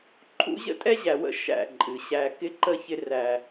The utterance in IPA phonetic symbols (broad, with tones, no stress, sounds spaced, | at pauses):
ǃʰ ṵ˦ ʑ ə̰˦ tʼ ɛ˦ ʑ æ˨ w ə̰˦ ʃ æ̰˦˨ ǃʼ ɨ˨ ɕ æ˦ k ɪ˦ ǃ ə˦ ç ɪ˦ r æ˦